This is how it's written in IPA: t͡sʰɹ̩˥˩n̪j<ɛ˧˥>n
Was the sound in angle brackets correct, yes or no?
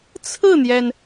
no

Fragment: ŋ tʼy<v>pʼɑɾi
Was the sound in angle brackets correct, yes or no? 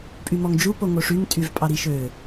yes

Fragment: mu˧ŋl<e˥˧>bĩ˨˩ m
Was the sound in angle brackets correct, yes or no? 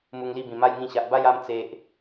no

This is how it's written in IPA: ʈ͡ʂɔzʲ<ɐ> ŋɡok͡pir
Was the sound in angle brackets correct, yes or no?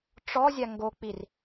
no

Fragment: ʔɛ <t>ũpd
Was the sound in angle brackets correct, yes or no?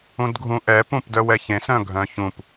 no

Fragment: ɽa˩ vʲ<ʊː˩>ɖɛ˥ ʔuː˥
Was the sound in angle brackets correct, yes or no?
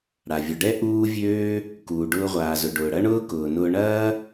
no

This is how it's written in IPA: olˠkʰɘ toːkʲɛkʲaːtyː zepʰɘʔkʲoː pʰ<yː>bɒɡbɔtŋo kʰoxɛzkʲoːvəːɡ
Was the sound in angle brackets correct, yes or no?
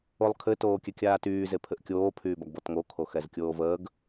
yes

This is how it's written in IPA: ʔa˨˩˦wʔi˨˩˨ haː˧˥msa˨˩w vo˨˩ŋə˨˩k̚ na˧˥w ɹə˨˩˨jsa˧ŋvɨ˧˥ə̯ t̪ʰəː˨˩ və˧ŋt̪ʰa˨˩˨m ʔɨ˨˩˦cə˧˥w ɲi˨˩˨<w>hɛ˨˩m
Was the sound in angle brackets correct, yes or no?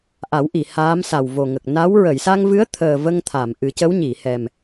no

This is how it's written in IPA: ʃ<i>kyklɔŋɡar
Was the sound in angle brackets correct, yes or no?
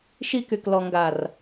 yes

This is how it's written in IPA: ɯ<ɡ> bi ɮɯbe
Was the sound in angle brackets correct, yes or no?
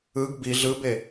yes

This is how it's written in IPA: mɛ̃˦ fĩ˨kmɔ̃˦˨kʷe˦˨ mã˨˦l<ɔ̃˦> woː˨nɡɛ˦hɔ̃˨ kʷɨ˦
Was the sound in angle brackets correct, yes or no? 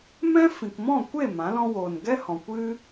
yes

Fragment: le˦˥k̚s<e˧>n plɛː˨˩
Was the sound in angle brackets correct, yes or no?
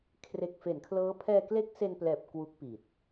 yes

